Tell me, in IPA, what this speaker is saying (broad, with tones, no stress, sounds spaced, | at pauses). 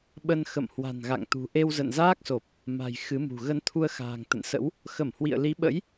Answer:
ɓ ə˧ n x ə̰˧˨ m h w a̤˨˩ n ɣ a̰˧˨ ŋ t̪ ṳ˨˩ ʔ e˧ w z ə̰˧˨ n z aː˦˥ k̚ s o˨˩ p̚ | m a̤˨˩ j x ɨ˨˦ m ṳ˨˩ ɣ ə˧ n t̪ʰ u˧ ə̯ x a̤ː˨˩ ŋ t̪ ə̰˧˨ n s ə̰˧˥ w | x ə˧˩ m h w ḭ˧˨ ə̯ l i˨˦ ɓ ə̰˧˥ j